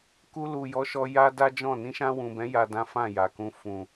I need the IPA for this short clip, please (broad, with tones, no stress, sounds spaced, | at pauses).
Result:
k u˧ l u˨ j ɔ˨˦ ʃ ɔ˧ j a˦ d a˦ d͡ʒ ɔ̃˦˨ n ĩ˧ ʃ ã˧ w ũ˨ b ɛ̃˨˦ j a˧ d ã˦ f ã˦˨ j a˨ k ũ˧ f ũ˨